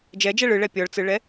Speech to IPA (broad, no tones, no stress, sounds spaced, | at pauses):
d͡ʒ ɛ d͡ʒ ɛ ɭ ɯ ɭ ɛ pʲ ɔ ɭ t͡s ɯ ɭ ɛ